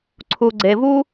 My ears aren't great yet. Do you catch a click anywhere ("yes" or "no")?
yes